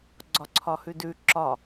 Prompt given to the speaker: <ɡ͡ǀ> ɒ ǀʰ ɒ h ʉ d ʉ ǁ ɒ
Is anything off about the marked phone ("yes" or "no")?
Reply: no